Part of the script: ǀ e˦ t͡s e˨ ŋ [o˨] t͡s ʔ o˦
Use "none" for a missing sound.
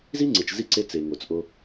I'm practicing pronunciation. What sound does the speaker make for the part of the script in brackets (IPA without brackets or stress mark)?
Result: o˨